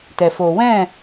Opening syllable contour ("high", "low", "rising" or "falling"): low